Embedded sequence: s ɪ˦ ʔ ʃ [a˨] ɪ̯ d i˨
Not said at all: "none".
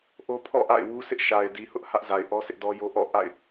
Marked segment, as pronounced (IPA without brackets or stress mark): a˨